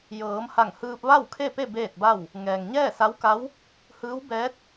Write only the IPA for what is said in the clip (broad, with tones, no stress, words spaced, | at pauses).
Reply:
jɤː˩˧mha˧˩ŋ hɯː˧p̚ʋa˥˨wkʰe˥˨pe˥˨ beː˥˨t̚ba˥˨w | ŋɛː˩ŋɲɛː˥˨sa˧˥wka˧˥w | hɯː˧˥w bɛː˧˥t̚